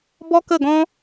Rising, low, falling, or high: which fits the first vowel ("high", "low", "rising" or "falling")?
high